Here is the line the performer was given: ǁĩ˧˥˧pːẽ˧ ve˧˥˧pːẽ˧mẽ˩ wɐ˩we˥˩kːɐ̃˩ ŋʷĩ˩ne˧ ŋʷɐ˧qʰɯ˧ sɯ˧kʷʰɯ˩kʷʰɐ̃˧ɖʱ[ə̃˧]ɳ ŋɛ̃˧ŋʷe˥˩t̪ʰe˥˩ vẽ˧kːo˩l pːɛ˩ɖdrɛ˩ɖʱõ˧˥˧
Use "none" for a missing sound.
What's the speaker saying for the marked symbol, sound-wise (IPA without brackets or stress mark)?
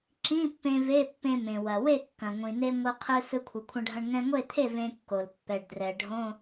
ɐ̃˧